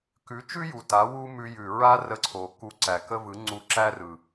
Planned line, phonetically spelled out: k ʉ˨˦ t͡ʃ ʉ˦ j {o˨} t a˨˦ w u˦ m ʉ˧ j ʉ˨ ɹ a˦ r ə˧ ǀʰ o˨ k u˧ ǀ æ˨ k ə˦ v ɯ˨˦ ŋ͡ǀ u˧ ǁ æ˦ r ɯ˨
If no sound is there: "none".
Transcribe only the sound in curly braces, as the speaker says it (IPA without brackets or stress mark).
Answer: u˨